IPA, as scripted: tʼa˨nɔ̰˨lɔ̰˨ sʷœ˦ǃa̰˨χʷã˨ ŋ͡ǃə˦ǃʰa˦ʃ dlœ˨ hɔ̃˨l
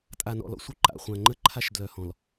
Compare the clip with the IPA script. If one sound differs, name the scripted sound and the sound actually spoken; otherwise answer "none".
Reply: none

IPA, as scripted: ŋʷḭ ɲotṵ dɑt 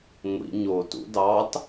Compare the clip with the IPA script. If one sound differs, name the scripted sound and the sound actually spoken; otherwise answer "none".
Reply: none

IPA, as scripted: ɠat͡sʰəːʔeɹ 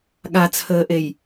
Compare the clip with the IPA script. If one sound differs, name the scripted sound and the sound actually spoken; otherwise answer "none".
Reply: ɹ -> j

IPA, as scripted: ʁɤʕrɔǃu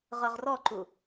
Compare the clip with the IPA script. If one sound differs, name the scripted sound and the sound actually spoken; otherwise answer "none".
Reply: ʕ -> ʁ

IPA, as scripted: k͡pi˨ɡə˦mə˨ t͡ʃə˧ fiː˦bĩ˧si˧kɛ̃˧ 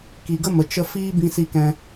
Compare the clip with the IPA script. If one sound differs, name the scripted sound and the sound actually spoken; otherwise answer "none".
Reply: k͡p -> k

